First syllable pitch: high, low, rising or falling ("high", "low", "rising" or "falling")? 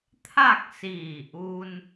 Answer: falling